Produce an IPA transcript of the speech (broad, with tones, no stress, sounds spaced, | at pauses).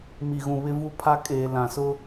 m i˨ ɣ ũ˨ β ɪ˦ v u˦ pʰ a˦ kʼ eː˨ l ã˨ s ʊ˦